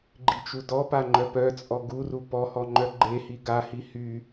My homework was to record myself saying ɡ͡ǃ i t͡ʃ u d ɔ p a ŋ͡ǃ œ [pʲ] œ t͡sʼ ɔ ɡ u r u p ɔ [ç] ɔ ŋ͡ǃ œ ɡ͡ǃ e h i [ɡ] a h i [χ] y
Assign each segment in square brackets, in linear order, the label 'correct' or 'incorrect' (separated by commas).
incorrect, incorrect, correct, incorrect